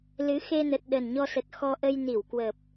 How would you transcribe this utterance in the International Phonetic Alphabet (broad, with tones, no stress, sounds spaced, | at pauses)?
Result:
l ɨ˨˦ x e˧ n ə˨˩ t̚ ɗ ə˨˩ n ɲ ɔ˧ s ə˨˩ t̚ x ɔ˧ ʔ ə˧ j n i˧˩ w k w ə˨˩ p̚